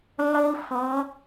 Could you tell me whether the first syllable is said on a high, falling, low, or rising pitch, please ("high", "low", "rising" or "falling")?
high